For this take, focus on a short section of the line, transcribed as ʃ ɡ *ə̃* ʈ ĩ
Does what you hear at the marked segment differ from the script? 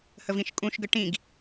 yes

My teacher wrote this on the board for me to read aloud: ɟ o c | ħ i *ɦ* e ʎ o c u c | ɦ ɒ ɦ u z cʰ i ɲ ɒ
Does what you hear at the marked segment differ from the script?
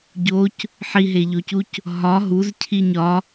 no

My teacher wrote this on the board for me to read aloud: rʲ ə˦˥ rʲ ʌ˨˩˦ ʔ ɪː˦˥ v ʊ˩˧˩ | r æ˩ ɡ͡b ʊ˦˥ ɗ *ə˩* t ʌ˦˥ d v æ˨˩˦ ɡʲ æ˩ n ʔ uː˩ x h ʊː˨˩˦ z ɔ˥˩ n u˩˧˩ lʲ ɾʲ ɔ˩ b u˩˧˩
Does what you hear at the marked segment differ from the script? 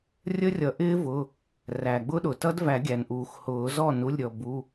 yes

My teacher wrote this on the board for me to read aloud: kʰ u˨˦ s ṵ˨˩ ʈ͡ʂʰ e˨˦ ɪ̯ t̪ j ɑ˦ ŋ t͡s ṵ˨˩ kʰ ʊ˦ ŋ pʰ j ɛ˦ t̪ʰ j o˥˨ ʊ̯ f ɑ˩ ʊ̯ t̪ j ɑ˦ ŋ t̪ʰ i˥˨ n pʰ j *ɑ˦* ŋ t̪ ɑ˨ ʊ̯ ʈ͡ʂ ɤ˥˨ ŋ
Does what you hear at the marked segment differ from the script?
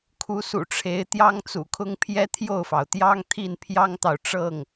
no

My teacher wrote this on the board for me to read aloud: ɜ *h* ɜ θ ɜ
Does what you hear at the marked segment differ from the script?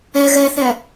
yes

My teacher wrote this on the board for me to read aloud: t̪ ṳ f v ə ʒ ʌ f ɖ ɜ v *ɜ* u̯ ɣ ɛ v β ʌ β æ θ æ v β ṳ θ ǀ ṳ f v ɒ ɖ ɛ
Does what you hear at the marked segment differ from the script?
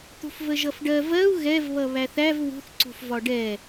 no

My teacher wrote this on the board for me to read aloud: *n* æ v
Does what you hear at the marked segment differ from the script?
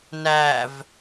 no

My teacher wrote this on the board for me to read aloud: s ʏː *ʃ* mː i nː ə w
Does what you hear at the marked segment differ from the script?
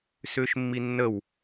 no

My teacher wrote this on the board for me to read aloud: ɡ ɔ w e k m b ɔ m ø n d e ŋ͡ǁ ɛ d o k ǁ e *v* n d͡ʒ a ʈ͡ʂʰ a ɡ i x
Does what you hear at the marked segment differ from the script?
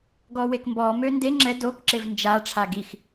no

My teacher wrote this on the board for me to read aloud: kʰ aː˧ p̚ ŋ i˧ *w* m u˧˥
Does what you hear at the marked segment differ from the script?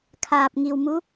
no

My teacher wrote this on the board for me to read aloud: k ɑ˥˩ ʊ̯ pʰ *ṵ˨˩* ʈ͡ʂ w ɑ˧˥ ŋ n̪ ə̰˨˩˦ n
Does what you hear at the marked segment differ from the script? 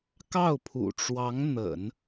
no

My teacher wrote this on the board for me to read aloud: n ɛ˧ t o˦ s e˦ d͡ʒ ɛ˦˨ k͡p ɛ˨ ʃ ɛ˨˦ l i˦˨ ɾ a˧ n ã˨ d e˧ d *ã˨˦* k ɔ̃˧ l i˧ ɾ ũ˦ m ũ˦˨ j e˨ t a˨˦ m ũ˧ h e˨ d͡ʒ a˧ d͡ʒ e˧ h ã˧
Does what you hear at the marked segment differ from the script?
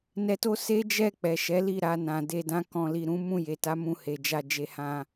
yes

